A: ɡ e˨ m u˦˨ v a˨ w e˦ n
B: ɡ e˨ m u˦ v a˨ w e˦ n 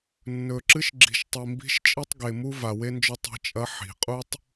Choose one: B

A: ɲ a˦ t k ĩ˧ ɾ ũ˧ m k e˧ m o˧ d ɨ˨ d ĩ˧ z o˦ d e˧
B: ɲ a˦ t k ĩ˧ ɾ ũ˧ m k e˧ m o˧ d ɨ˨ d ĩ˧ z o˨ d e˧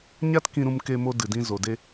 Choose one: B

